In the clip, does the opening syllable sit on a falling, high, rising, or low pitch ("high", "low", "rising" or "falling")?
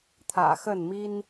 low